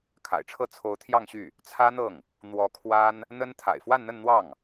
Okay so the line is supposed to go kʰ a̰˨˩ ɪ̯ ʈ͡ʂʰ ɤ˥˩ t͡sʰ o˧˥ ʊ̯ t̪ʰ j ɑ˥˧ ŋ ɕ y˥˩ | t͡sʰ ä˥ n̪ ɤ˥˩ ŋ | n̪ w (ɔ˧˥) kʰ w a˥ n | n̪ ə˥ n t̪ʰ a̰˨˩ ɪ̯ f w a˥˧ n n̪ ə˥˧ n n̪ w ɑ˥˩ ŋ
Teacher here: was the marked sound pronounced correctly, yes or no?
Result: yes